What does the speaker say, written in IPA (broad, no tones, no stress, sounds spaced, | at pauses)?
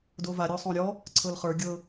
d o v a ɾʲ ɔ sˤ õ ɾʲ ɔ | ǀʰ ɤ l χ ə˞ ɡʲ ɤ